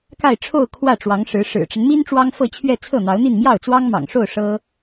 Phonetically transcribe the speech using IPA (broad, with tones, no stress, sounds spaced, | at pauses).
k a˥˧ ɪ̯ ʈ͡ʂʰ o˥˧ ʊ̯ kʰ w ä˥˩ ʈ͡ʂ w ɑ˧˥ ŋ ʂ ɻ̩˧˥ ʂ ɻ̩˨˩ ʈ͡ʂ ə˦ n m i˥ n ʈ͡ʂ w ɑ˥ ŋ f ɤ˥˧ t͡ɕʰ ɥ ɛ˥˧ t͡sʰ ɤ˥˩ n̪ ɑ˧˥ ʊ̯ n̪ i˥˧ n m j ɑ˥˩ ʊ̯ t͡s w ɑ˥ ŋ m ɑ̰˨˩ ŋ ʂ o˥˩ ʊ̯ ʂ ɤ˥